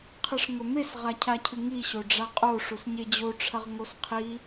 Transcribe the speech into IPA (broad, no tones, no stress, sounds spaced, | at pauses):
qʰ ɨ ʂ ŋ ɵ m e s ʁ a cʰ a cʰ ɨ ŋ i ɕ o ɖ͡ʐ a qʼ o ʂ u s ɲ e d͡ʑ o ʈ͡ʂʰ ɐ ʁ ŋ o s qʰ i